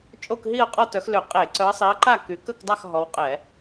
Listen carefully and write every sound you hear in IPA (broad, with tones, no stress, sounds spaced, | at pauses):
t͡ʃʼ o˥˨ k ɦ i˥˨ ɐ̯ qʼ ɔ˥˨ t œ˨˦ x l ø˧˩˧ qʼ e˧˩˧ ǀ œ˨˦ ɐ̯ sˤ i˨˦ ɐ̯ ǃ a˥˨ k y˨˦ k ə˥˨ k dˤ a˥˨ x ɦ ɔ˨˦ w qʼ ɛ˧˩˧